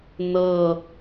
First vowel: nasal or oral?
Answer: oral